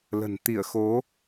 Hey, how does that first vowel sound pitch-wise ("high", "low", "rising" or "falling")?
low